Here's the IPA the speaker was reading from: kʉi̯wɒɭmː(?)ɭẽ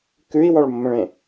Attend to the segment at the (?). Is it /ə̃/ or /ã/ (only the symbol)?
ə̃